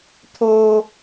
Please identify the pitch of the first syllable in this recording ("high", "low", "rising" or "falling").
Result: high